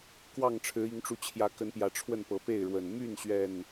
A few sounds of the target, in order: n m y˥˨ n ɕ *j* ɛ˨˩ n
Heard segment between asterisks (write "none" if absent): ɥ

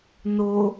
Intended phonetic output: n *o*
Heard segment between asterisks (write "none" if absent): o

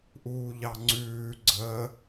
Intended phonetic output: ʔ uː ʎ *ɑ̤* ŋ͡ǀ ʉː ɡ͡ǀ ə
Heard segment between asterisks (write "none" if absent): ɑ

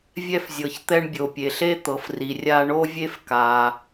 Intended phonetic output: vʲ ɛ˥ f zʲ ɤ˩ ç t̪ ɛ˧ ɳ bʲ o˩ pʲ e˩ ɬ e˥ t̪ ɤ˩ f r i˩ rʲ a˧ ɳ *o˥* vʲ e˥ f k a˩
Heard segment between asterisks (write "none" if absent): o˥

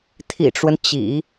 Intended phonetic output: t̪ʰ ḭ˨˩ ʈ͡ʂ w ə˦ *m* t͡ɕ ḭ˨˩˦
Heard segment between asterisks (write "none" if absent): n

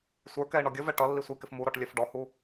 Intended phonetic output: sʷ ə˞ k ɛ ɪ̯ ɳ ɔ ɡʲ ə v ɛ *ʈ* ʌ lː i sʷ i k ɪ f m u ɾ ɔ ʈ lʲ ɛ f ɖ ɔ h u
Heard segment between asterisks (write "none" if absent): ʈ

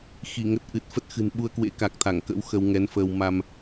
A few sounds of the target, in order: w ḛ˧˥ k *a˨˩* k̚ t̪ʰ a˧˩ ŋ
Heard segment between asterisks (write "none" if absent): a˨˩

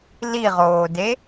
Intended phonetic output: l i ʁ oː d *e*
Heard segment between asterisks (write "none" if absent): e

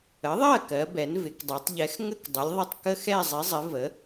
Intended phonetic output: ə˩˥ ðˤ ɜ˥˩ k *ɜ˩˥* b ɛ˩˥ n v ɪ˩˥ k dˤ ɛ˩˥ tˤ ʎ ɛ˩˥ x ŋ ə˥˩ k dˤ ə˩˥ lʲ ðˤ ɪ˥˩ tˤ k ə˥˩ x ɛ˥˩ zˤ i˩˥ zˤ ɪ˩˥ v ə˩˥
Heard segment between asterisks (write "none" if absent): ɜ˩˥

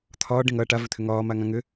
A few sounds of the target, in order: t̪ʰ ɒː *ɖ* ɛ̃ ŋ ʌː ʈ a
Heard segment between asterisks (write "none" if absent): ɖ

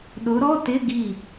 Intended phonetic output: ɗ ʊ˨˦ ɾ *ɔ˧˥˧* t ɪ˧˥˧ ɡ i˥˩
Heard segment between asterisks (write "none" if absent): ɔ˧˥˧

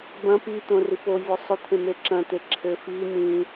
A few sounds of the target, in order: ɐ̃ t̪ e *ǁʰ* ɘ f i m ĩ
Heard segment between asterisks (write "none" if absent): ǁʰ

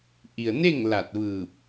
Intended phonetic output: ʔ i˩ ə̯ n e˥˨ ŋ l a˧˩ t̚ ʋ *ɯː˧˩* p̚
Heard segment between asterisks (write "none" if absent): ɯː˧˩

